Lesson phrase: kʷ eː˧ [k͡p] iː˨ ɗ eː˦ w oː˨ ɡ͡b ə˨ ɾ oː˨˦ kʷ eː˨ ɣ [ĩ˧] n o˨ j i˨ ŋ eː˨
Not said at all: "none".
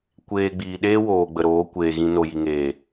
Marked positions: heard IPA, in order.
ɡ͡b, ĩ˧

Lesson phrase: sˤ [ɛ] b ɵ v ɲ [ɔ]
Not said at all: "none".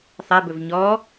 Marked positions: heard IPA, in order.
ɛ, ɔ

